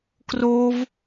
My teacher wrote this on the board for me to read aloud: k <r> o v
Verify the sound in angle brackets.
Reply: correct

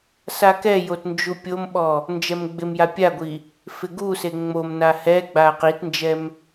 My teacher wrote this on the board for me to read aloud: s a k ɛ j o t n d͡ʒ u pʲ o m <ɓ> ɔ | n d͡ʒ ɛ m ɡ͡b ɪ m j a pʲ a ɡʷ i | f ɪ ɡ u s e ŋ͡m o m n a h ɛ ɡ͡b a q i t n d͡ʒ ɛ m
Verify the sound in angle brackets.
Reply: correct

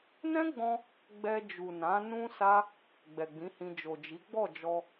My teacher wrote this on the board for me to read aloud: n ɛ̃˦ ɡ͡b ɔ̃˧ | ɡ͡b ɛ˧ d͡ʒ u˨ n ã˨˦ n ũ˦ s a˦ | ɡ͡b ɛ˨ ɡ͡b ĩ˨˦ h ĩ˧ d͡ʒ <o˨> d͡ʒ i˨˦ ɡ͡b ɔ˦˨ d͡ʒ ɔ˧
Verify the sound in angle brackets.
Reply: correct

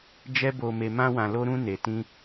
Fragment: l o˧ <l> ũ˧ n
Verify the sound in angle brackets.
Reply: incorrect: ɾ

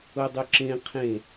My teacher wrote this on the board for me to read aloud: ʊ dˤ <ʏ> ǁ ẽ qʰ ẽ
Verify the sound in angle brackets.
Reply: correct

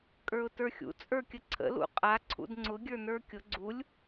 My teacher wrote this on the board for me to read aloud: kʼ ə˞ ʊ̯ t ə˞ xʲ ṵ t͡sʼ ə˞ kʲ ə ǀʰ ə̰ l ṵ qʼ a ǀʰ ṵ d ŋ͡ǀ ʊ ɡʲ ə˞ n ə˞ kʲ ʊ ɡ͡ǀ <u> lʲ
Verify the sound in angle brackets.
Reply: correct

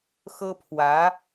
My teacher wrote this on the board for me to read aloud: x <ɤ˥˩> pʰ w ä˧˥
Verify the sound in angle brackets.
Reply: incorrect: ɤ˥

